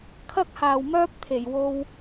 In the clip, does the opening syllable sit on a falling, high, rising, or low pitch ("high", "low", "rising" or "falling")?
high